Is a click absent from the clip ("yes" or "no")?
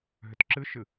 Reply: no